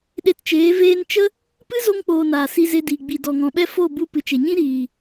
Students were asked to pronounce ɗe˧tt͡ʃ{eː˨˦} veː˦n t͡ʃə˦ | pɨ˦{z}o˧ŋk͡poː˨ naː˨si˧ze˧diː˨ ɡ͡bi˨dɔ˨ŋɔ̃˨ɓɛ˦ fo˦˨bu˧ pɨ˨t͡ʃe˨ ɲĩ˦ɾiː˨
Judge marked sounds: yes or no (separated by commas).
yes, yes